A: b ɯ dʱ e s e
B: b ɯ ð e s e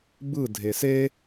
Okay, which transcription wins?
A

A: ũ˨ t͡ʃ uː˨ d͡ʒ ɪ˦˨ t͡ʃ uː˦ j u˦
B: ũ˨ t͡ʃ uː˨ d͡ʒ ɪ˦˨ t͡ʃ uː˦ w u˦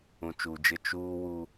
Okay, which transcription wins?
B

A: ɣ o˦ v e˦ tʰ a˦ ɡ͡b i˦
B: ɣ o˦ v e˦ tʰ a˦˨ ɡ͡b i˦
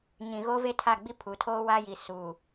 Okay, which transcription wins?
B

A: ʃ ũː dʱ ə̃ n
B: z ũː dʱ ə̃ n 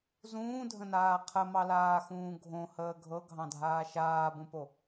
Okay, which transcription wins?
B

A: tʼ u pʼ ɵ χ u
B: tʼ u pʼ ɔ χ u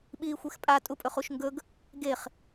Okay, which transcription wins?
A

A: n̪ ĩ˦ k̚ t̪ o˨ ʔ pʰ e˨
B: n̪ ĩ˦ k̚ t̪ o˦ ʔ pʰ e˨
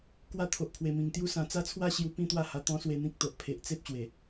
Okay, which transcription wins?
A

